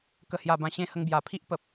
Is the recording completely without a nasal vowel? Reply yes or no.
no